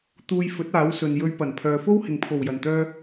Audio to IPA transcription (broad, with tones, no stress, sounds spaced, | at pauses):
t̪ uː˧ j f ɵ˨˥ t̚ aː˨˥ w s ɵ˨ n j ɵ˧ ɥ p ɐ˨˩ n pʰ œː˨ f o˥ w h ɪ˨ ŋ pʰ o˨˩ w j ɐ˨˩ n t̪ œː˧